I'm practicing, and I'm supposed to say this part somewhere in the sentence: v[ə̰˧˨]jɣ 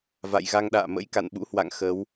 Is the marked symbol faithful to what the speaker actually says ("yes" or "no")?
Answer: no